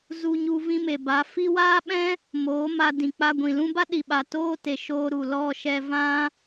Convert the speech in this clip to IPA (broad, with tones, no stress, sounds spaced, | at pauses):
z u˧ ɲ u˧ v ĩ˧ m e˨ b a˨˦ f i˦ w aː˦ ɓ ɛ̃˦ | m oː˨˦ m a˧ d ĩ˨ k͡p a˧ ɡʷ ĩ˨ l ũ˦ b a˦ ɗ i˨ ɓ a˨ t oː˦ t e˨ ʃ oː˧ ɾ u˨ l ɔ˦˨ ʃ ɛ˧ v ã˦